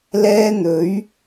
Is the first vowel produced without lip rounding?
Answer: yes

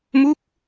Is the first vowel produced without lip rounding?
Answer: no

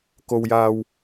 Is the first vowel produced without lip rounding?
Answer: no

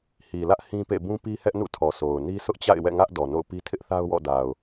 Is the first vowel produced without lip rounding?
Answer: yes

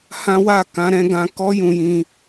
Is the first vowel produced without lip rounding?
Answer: yes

